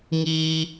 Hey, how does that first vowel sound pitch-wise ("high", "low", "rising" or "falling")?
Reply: high